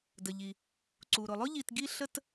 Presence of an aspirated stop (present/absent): absent